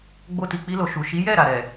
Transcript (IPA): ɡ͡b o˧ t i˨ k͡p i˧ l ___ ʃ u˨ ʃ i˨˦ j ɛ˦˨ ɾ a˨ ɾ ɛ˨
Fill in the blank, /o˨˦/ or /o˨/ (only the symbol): o˨